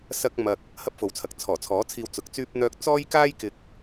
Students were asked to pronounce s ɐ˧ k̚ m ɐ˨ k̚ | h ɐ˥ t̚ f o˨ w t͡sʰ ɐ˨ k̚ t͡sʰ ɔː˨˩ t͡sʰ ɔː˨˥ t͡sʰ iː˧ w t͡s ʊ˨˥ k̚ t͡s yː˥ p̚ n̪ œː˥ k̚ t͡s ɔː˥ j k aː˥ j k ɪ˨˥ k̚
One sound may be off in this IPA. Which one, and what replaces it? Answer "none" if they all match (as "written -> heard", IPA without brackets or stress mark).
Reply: t̚ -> p̚